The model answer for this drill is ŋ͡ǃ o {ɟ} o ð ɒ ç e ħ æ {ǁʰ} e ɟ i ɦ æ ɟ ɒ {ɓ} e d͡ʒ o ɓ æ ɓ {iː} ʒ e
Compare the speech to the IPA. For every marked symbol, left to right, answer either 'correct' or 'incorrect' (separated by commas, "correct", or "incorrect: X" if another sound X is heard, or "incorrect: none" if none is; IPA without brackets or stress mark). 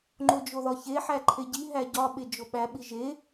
incorrect: d͡ʒ, incorrect: ǃʰ, correct, incorrect: i